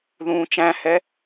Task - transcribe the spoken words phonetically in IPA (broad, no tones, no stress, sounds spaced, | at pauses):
ð ũː t͡ʃ æ̃ h ɛ